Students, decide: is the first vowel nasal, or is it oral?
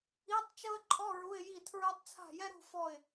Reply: oral